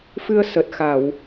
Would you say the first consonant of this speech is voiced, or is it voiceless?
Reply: voiceless